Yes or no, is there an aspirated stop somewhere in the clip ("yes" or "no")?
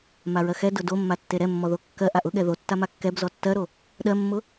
no